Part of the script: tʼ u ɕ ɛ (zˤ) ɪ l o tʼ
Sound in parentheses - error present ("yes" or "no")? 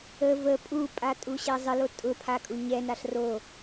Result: no